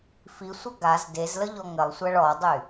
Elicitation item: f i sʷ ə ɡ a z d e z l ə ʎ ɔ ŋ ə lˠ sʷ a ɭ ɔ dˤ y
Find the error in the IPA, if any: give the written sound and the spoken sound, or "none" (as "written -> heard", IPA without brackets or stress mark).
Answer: none